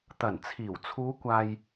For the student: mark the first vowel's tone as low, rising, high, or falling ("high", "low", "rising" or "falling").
low